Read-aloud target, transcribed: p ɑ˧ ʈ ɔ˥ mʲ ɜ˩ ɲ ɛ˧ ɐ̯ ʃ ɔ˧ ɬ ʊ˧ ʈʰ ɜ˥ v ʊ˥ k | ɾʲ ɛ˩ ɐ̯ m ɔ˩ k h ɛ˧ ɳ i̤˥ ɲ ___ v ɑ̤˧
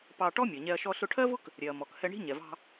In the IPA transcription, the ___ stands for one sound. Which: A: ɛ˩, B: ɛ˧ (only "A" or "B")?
A